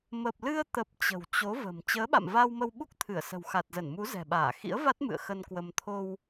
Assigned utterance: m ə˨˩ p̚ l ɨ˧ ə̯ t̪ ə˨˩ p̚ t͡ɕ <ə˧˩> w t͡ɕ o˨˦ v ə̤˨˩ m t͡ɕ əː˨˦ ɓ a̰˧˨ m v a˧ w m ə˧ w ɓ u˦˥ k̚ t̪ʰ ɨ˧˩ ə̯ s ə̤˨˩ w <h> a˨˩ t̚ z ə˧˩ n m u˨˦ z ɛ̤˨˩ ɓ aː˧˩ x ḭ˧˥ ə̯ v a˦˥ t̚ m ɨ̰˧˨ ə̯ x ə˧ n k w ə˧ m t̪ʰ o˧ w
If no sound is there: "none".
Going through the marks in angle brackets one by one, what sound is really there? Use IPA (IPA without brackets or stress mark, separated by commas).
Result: ə̤˨˩, x